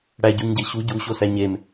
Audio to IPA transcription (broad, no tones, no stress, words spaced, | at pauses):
ɽæɟuɲɟe ɕu ɟuɕosæ ɲem